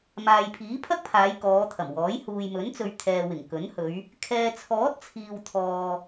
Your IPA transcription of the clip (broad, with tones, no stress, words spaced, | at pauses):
maː˨jpʰiː˨˥pʰɐ˥k̚pʰaː˨˧j kɔː˨˧t̪ʰɐ˨˩mwɔː˨˥j huː˨jmɵ˨˥nt͡sɵ˨ɥ t̪ʰɛː˨ wɪ˨˩ŋkɵ˨˥nhɵ˨˧ɥ | kʰɛː˨t͡sʰɔː˨˥t̚t͡sʰiː˨w t̪ʰɔː˨